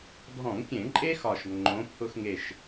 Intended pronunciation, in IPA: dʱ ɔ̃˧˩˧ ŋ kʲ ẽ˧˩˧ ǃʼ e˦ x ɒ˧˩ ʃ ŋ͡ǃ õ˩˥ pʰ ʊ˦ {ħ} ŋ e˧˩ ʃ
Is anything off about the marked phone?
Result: yes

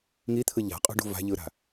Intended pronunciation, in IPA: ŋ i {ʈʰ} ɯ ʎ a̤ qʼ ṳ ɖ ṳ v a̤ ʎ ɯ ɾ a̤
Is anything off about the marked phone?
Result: yes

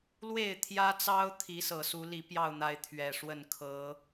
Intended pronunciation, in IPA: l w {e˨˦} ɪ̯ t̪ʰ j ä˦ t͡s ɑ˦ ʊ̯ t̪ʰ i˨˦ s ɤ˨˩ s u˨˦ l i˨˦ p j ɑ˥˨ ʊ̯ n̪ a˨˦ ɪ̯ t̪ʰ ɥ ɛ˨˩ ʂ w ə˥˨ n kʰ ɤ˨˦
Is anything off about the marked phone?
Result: yes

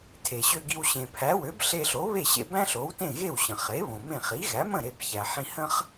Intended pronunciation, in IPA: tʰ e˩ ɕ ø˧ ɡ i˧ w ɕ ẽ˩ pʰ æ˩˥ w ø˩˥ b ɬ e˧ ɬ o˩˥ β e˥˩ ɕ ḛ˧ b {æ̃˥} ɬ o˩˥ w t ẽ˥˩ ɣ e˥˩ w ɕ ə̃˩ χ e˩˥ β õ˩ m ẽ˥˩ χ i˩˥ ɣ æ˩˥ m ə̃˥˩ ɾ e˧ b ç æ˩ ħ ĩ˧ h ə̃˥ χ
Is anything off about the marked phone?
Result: no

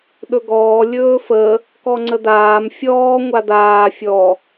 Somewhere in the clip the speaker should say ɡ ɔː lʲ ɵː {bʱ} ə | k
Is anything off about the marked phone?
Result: yes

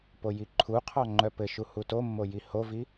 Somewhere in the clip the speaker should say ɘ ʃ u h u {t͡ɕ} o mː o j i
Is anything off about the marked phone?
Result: yes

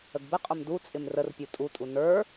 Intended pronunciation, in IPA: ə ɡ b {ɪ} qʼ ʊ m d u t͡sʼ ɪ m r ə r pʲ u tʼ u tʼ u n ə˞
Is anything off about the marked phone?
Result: no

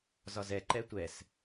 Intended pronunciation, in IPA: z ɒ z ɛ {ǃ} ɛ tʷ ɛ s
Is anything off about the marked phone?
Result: no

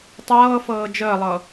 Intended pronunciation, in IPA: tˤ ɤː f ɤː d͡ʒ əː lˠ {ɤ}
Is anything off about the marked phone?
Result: no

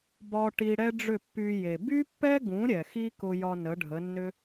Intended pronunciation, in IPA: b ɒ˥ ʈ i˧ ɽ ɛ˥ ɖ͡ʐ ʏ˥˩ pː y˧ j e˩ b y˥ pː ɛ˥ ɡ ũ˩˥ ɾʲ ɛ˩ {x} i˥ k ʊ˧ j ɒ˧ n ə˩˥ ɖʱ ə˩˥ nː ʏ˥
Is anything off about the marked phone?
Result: no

